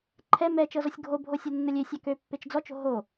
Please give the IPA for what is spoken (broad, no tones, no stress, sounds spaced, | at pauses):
ǃʰ ɛ m ɛ t͡ʃ ɤ z ɔ sʲ ɡʱ o bʱ o sʲ ɤ nː ə lʲ ø sʲ ɑ k ø pː e t͡ʃ d͡z ɔ t͡ʃ o̤ ɦ o